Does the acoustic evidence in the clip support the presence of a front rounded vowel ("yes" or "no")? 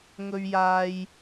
no